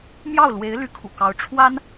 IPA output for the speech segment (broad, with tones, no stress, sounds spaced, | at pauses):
m j ɑ˥˩ ʊ̯ l w e˧˥ ɪ̯ l y˧˥ kʰ ṵ˨˩ k ɑ˧˥ ʊ̯ ʈ͡ʂʰ w a˥ n